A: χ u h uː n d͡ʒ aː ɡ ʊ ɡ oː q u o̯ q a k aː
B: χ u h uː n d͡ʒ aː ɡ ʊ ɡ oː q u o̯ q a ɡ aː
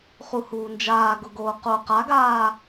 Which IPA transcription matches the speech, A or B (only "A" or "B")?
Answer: B